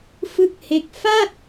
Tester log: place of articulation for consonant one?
labial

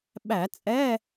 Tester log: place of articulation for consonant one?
labial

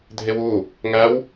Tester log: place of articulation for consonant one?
alveolar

